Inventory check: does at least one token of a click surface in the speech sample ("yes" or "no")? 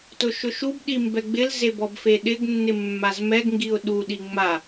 no